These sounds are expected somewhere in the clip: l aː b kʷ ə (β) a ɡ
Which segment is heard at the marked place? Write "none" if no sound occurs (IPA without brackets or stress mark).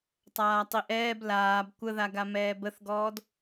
ð